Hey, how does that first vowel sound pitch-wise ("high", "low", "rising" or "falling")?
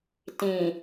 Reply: low